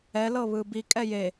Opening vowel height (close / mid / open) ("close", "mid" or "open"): mid